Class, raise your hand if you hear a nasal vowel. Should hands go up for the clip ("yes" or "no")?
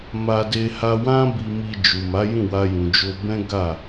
yes